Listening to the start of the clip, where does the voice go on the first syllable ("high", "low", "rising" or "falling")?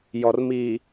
low